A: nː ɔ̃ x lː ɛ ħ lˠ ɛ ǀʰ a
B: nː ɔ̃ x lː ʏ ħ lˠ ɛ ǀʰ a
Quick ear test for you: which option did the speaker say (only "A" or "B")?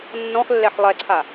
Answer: A